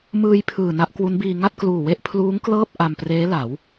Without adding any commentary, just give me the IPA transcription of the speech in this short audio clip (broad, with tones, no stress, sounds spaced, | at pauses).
m ɯː˧ j pʰ ɯː˨˩ n a˦˥ ʔ k w u˦˥ n b iː˧ ŋ a˥˩ t̚ k l uː˨˩ w e˥˩ ʔ pʰ l uː˦˥ ŋ k l ɤː˥˩ p̚ ʔ a˧ m p r eː˦˥ l a˩˦ w